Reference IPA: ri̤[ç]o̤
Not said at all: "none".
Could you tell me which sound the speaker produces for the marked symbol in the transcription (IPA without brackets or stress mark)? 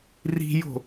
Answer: j